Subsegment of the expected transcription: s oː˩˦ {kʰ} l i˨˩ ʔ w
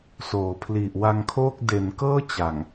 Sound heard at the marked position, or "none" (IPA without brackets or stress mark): pʰ